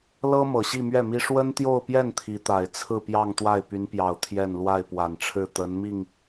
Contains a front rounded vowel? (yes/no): yes